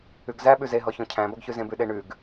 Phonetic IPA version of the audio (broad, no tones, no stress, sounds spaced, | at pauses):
ʉ ɡ z æ ɓ ʉ z e ɦ ɔ ç ɔ̃ cʰ æ̃ b ɔ ɡ ç ʉ z ẽ b ʉ ɗ e ɳ ʉ ɡ